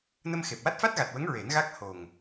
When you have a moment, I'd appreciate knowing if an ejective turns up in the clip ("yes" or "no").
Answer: no